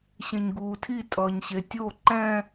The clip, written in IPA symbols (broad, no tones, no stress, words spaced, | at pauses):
ɕẽɲɡuːtʰi tʼʌːɲɕetʲo ǃɛ̃